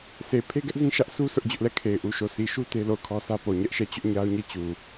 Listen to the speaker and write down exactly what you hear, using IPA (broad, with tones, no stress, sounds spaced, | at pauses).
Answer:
sʰ e˨ pʰ e˦ ɡ ɛ˦ ʔ z ĩ˦ ʃ ä˦ ʔ sʰ u˦ sʰ ʊ˦ ʔ d͡ʑ ʊ˦ ʔ l ɛ˦˨ kʰ e˨ ɪ̯ ʔ u˨ ʃ o˨ sʰ i˨ ʃ u˦ t e˦ l o˦˨ ʊ̯ kʰ ɔ˦ sʰ ä˦ p o˨ ɲ ɛ˦ ʔ ʃ ɛ˦˨ t͡ɕ ʊ˦ ʔ ɲ a˦ ʊ̯ ɲ e˦˨ t͡ɕ u˨